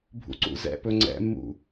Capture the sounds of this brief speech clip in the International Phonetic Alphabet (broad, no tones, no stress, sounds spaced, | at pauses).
bʱ ṵ ǀ ṵ z ɛ̰ p ɵ ŋ͡ǀ ɛ̰ mː ṵ